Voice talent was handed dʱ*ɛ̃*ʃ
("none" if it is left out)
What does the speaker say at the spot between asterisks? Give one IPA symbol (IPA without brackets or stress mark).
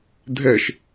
ɛ